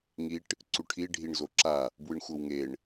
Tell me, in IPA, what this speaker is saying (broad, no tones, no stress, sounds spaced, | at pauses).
ŋ i ʈ | ǀ u ʈʰ i ɖʱ i ɳ z o ǁ a | b w ɯ ɳ xʷ ɤ w ŋ e ɳ